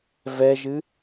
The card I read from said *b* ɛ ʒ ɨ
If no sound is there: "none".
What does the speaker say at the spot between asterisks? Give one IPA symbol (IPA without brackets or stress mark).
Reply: v